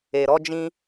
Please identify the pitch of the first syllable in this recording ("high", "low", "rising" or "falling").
low